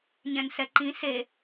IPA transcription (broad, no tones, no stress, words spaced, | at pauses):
ɲɛ̃nsɛǃĩ se